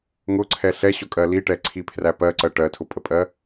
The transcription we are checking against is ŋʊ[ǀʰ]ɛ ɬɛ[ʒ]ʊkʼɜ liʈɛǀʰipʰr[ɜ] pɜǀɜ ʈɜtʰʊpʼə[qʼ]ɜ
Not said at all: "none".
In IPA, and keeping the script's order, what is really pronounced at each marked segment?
ǀʰ, ɕ, æ, pʼ

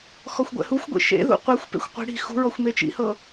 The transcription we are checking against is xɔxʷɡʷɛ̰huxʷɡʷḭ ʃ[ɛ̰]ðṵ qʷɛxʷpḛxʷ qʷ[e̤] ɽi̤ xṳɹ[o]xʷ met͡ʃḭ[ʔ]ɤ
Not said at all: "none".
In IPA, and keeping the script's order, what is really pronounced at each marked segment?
ḛ, i̤, ɔ, h

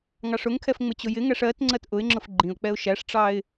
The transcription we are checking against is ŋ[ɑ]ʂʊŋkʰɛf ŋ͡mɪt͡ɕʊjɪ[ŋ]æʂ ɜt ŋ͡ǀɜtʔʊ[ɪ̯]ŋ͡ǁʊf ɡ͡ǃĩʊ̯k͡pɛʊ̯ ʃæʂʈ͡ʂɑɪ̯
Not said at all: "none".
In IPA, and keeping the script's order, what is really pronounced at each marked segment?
ɑ, ŋ, ɪ̯

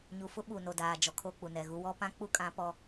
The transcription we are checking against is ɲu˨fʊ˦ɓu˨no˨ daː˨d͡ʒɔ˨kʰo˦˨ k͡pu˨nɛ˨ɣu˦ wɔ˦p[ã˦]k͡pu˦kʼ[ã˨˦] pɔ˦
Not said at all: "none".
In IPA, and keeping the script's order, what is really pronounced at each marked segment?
ã˦, ã˨˦

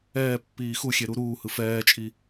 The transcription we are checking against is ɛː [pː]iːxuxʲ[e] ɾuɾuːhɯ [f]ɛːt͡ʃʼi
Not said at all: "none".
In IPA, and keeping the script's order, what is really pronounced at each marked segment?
pː, e, f

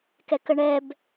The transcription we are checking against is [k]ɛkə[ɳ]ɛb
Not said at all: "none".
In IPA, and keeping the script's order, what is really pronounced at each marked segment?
k, ɳ

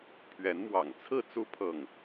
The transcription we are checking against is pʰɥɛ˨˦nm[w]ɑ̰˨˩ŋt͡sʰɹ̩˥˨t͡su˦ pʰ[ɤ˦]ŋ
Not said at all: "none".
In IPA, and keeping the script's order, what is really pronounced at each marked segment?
w, ɤ˥˨

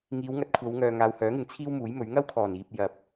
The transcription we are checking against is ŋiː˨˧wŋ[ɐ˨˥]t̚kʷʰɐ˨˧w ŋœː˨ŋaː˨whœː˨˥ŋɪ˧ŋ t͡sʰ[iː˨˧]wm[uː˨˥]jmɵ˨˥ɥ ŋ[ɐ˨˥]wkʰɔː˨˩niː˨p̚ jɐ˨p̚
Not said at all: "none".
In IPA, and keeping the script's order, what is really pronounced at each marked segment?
ɐ˨˥, iː˥, uː˨˥, ɐ˥

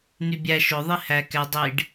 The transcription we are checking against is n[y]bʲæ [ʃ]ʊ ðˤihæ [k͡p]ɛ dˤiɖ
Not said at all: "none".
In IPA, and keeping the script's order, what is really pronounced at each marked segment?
y, ʃ, k

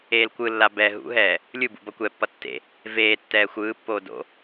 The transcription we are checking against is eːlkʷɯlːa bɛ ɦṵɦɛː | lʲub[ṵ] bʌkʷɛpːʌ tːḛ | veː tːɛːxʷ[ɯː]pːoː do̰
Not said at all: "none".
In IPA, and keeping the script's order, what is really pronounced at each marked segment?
ṵ, ɯː

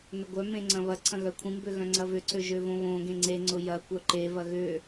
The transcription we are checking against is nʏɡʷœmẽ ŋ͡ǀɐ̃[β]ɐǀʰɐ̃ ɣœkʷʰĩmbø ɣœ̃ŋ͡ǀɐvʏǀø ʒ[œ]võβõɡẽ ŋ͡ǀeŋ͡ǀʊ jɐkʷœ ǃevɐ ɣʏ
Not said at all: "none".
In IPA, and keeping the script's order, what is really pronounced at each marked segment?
β, ø

